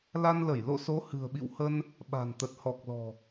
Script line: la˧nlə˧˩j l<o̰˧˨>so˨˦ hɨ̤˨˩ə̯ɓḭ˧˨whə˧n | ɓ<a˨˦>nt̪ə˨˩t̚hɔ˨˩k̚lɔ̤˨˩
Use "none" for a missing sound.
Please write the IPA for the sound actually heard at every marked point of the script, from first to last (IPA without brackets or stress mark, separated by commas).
o̰˧˨, a̤˨˩